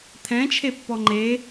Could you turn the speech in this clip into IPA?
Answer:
t̪ʰ ɛ̃ t͡ʃʰ e pː ɔ ŋ͡ǃ e

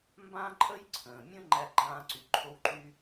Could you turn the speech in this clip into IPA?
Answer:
m b ã˥ ǃʼ ə˥ j ǀʰ ə̃ː˩ mʲ ə̃˥ ŋ͡ǃ æ˥ ɡ͡ǃ ãː˥ ǀ y˩ ǃʰ o˥ w ǃ y˥

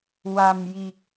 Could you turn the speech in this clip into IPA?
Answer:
w a˨˩ m j i˨˩ k̚

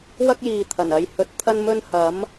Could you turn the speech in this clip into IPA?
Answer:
w ɐ˥ k̚ j iː˨ t̪ʰ ɐ˨˩ n ɐ˧ j h ɵ˧ t̚ t̪ʰ ɐ˥ n m ɵ˥ n h ɐ˨˥ m

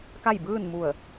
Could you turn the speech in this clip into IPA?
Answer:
k a˥˨ j b ɯː˥˨ n m u˧˩ ə̯

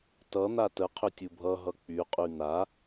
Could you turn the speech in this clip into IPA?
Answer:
t ʌ n̪ a t ə qʰ ʏ tʲ u bʱ ʌ ɦ ʌ k͡p y qʼ y n̪ a

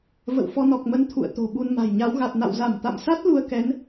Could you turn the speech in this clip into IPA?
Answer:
v ə̰˧˨ w f ɔ˧ n ɔ˨˩ k̚ m ə˨˦ n t̪ʰ ṵ˧˨ ə̯ t̪ o̤˨˩ ɓ u˧ n m a̤˨˩ j ɲ a˨˦ w ɣ a˨˩ t̚ n a̰˧˨ w z a˧˩ m t̪ a̰˧˨ m s a˦˥ t̚ l u˧ ə̯ k ɛ˨˦ n

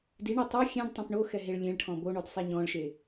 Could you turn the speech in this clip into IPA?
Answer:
d i ɳ i tˤ o xʲ ɛ̃ ɖ tˤ ẽ p ɳ o x ɛ ɦ e ɭ lʲ ẽ ɭ ʈʰ ɔ̃ b o ɳ o d sˤ e ɲ ɔ̃ ɭ ʃ e

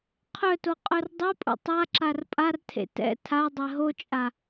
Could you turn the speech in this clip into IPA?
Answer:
qʰ œ t o qʼ œ r dˤ e pʼ ṵ tˤ a ǁ a r pʼ a r tʰ ḛ t ɛ̰ tʰ a dˤ ɛ ɦ o t͡ʃʼ a

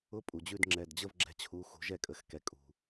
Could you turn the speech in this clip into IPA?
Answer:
ʊ˧˥˧ pʼ u˩ d͡ʑ ʉ˥˨ d ŋ͡ǁ ɛ˩˧˩ d d͡ʑ ə˥˨ v ɡ͡ǁ ɛ̤˨˦ t͡ɕʰ u˩˧˩ x ṳ˨˩˦ ʒ ɛ˥˨ kʼ ə˩˧˩ x k ɛ˩ kʼ ṳ˩

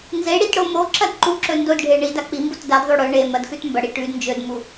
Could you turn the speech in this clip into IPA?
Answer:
n z e ɽ i t ɽ o m o ǁ ɐ d ǃ u ǁ ɵ n d o d ɖʱ e ɳ i d a k͡p i m b u t d a d ðˤ o ɽ ɵ ɳ e m ɐ d x ʉ t m b ɐ ɽ i ʈ ʉ d n d͡ʒ ɵ d m u

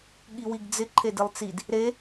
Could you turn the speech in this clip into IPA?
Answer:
ɠ i w i ɡ d͡z ɪ ǃʰ e d ɪ lˠ t͡s i d | ɾ e

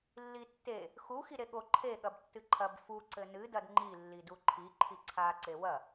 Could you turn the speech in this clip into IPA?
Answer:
lː i tː e | x u x i ɾ e ɠ o ǃʰ e ɠ ɐ b tː ɨ ǃʰ ɐ b f u ǀ ɘ n ɨ d ɐ d ŋ͡ǃ i lː i d u ǃʰ i ǃʰ i ǀʰ a ǀ e w ɐ

